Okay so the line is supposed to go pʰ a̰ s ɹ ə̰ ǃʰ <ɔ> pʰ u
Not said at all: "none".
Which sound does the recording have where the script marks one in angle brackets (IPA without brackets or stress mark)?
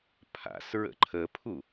ə